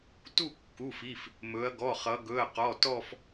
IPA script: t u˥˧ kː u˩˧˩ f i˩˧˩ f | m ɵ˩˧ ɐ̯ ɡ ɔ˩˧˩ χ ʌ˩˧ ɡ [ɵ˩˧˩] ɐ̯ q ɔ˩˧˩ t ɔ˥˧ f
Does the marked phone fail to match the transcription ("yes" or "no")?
no